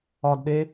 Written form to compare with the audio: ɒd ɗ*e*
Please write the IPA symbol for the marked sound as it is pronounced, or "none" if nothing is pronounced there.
e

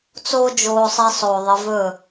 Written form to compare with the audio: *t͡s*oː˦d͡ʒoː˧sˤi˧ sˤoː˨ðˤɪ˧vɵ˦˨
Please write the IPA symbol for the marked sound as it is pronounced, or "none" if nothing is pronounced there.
t͡s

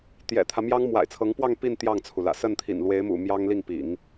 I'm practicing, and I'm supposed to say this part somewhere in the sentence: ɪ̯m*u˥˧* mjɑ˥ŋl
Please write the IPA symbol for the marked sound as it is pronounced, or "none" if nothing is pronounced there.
ṵ˨˩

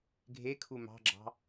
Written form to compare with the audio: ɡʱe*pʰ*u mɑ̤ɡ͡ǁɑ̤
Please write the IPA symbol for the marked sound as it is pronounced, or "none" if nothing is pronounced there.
kʰ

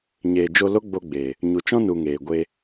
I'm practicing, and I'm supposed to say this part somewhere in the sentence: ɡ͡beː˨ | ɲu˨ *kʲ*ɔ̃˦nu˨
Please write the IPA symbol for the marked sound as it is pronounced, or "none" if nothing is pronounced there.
t͡ʃ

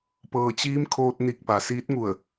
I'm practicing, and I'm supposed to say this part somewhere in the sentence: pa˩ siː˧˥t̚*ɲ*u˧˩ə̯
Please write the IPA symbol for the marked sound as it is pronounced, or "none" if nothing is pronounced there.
ŋ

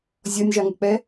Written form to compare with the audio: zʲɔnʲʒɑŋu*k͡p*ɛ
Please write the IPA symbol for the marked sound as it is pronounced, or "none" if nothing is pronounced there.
k͡p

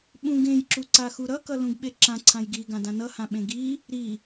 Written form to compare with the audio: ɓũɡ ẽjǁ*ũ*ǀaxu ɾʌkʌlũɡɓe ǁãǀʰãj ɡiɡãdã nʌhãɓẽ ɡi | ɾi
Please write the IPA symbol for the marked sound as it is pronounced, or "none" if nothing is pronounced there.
u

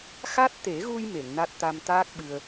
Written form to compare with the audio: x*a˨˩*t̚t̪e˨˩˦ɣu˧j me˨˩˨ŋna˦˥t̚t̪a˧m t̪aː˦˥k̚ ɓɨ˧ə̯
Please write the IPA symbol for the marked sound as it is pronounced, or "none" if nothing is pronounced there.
a˦˥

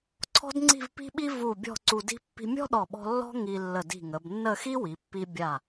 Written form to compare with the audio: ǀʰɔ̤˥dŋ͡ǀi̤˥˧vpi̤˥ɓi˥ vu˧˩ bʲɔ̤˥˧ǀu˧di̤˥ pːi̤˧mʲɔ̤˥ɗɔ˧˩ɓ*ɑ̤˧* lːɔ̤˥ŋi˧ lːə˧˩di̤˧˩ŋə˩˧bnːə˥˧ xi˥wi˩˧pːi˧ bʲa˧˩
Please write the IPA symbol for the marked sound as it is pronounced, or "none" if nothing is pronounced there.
ɔ̤˧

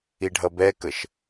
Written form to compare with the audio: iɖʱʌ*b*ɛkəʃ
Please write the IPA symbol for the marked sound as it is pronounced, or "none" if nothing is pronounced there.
b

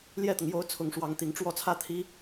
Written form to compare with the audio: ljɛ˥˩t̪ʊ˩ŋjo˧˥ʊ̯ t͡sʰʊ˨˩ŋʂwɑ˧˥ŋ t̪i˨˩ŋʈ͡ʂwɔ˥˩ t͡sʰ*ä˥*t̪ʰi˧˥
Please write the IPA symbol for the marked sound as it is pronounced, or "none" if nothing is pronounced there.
ä˥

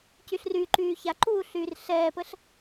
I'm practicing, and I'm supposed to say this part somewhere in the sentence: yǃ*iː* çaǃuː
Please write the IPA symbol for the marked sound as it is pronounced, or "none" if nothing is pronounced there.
yː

